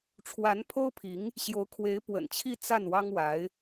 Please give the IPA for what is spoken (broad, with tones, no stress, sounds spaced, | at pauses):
ʈ͡ʂʰ w a˧˥ n pʰ o˥ ʊ̯ pʰ i˧˥ ŋ | ɕ j o˧˥ ʊ̯ kʰ w e˧˥ ɪ̯ p w ə̰˨˩ n t͡ɕʰ i˥˧ t͡s a˥˩ n w ɑ˥ ŋ w a˧˥ ɪ̯